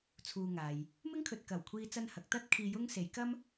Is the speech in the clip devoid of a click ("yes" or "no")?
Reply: yes